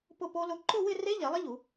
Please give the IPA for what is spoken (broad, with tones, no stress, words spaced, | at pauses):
pʊ˥˧po˦˥lʊ˦˥ ǃʊ˥˧wɪ˥˧re˦˥ ʎɛ˨˩˦lˠɪ˦˥ʎu˨˩˦